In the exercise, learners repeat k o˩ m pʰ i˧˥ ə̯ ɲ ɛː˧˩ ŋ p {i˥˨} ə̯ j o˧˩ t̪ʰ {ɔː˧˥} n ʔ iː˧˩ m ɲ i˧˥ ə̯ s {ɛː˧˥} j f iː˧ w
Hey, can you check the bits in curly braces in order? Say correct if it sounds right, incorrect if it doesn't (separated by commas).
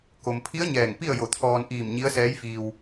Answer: correct, incorrect, correct